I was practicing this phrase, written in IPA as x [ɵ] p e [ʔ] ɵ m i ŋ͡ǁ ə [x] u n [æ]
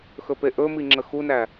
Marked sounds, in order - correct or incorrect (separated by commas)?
correct, correct, correct, correct